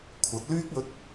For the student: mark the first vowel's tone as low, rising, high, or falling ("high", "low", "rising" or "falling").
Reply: rising